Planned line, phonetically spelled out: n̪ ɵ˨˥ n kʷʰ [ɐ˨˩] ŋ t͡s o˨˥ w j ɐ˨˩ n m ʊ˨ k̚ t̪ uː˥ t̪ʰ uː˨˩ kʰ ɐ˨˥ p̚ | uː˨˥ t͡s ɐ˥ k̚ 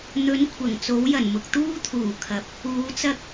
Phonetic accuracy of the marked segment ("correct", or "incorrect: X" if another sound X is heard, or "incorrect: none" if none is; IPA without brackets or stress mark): correct